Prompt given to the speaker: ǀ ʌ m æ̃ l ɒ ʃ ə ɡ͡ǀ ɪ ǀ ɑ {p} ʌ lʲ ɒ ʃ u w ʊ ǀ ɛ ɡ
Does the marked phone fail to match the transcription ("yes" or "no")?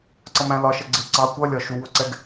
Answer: yes